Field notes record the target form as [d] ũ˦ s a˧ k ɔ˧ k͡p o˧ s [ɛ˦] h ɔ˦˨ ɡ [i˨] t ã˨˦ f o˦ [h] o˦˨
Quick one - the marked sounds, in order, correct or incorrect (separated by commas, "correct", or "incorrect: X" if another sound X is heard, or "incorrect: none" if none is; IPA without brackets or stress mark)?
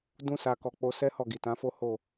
correct, correct, correct, correct